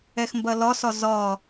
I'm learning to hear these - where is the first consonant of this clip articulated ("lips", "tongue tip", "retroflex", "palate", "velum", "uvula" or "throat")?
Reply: velum